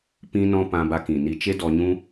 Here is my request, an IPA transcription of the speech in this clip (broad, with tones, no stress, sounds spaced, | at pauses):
p ĩ˧ n ɔ̃˧ p ã˧ b a˧ k ĩ˨ n i˧ t͡ʃ e˦ d ɔ˧ ɲ ũ˦